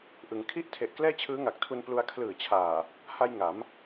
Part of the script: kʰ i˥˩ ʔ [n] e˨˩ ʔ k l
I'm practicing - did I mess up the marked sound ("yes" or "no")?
yes